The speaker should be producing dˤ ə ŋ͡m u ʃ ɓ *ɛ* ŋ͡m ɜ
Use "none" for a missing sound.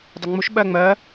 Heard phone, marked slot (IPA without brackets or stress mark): ɜ